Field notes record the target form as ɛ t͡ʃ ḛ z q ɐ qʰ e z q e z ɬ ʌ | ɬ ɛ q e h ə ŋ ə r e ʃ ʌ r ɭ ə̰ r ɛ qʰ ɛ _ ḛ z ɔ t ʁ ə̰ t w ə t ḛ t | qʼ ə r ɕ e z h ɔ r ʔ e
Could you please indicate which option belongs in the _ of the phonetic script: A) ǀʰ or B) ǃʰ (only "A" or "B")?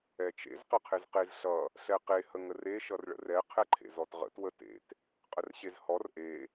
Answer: B